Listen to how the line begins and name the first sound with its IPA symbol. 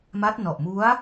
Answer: m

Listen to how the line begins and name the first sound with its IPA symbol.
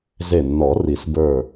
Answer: z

